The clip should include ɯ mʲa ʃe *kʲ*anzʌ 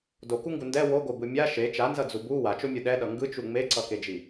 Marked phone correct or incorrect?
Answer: incorrect